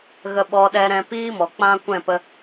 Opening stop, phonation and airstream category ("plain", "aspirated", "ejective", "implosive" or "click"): implosive